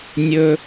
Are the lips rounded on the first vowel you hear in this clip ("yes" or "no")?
yes